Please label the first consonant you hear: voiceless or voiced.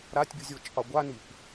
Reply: voiced